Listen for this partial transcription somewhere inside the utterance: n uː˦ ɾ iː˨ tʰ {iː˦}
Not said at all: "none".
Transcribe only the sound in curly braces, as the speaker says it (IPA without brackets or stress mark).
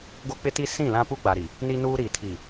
iː˨